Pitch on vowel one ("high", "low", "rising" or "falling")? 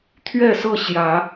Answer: falling